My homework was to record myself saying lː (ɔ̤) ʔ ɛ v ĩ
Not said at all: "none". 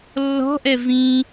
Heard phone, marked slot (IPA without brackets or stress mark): ɔ̤